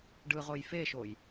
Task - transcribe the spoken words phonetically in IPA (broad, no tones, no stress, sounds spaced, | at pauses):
ɖ ɯ ʁ o j f e ʃ o j